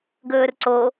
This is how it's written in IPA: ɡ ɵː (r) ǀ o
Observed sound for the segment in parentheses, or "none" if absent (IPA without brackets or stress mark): r